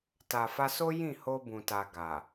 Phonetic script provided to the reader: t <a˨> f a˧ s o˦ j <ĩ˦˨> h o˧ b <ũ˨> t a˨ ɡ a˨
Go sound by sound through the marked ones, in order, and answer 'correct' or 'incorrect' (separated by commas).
correct, correct, correct